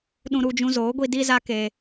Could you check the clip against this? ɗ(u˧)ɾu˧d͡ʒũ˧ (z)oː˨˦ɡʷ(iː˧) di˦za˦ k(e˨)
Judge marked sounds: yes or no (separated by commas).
no, yes, no, no